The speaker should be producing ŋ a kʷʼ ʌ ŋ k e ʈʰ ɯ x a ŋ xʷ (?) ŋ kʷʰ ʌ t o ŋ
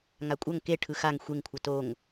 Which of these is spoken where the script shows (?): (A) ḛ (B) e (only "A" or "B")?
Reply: B